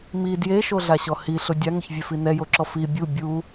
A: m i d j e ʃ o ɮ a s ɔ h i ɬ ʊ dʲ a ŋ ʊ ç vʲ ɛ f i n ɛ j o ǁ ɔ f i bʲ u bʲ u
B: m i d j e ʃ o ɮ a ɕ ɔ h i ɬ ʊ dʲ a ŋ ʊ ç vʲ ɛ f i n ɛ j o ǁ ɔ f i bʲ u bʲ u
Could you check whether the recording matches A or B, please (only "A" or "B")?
B